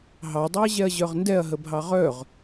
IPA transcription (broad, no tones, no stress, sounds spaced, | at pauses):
ɦ ɑ dˤ u ɐ̯ ʑ ɛ ɐ̯ ʑ œ ʁ n d ɛ ɐ̯ ɦ ə bʱ ɑ ʁ œ ʁ